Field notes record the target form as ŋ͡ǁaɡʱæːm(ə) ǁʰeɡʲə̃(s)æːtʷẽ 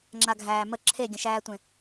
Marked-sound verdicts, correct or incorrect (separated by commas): correct, incorrect